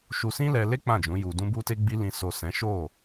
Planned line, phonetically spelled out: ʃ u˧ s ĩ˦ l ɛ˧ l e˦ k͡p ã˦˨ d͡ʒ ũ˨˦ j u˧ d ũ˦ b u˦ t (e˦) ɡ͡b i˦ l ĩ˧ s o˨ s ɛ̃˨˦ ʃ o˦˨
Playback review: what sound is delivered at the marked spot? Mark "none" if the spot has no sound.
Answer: e˦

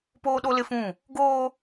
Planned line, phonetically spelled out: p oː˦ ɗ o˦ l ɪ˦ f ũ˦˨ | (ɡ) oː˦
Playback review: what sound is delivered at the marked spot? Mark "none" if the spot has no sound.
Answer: ɡ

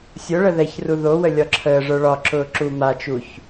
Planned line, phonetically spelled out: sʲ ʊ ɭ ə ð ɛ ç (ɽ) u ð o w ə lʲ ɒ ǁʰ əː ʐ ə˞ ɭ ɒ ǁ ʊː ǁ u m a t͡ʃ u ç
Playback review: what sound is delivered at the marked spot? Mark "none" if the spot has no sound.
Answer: r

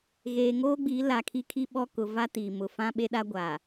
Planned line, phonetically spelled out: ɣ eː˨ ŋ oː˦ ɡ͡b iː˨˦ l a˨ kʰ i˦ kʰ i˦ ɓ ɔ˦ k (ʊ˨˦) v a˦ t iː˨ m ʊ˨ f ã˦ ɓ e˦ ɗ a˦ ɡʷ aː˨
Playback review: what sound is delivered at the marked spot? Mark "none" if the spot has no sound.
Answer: ʊ˨˦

